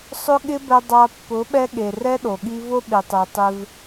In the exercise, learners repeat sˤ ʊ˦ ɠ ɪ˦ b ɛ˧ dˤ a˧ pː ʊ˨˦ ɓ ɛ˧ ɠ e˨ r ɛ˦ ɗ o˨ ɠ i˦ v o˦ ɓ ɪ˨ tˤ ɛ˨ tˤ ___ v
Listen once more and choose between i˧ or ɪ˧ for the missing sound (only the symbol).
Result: ɪ˧